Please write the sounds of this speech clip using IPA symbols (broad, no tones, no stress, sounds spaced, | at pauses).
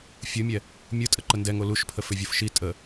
fʲ ɯ mʲ ɛ | mʲ ɯ tʼ ə ǃ ə n d ɛ ŋ o l u ʃ pʰ ə f ʏ vʲ o f ʃ i tʼ ə